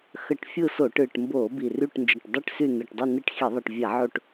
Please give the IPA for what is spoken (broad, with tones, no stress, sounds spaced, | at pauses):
x ə˧˩˧ ʈ fʲ ɯ˦˨ s o˧˩˧ ʈ ɯ˨˩ ʈ m b o˧˩˧ b i˨˩ r y˦˨ ʈ n d͡ʒ ə˨˩ ʈ dˤ i˦˨ ʈ s y˦˨ n ɯ˨˩ ʈ dˤ y˦˨ n i˦˨ ʈ x i˧˩˧ ðˤ i˨˩ ʈ vʲ a˧˩˧ ʕ o˦˨ ʈ